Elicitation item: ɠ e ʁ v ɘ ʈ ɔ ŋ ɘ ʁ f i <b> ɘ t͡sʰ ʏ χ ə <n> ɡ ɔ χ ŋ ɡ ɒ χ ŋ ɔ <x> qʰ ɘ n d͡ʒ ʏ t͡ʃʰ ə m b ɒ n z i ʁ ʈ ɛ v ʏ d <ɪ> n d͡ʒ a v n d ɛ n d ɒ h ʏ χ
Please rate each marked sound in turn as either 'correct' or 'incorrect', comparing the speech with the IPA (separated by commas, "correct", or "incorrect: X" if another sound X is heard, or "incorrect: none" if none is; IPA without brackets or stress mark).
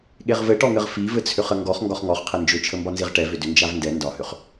incorrect: v, incorrect: ŋ, incorrect: χ, incorrect: ʏ